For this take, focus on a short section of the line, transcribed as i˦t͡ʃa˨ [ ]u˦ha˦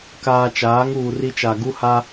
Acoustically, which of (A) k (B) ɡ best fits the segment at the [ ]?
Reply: B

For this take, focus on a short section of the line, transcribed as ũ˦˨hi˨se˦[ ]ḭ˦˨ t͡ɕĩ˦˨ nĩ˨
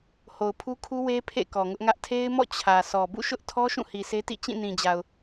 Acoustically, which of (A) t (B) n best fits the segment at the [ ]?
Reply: A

